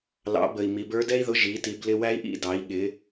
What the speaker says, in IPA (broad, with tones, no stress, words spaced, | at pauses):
lɑ̰˩˧bə˩i̯ mi˩˧bə˞˧˥dɛ˥i̯ðʊ˧˥ ʒi˩˧ ti˩˧blɪ˧wæ˧˥i̯ʔḭ˧ dɑ˩˧i̯ɠɪ˩˧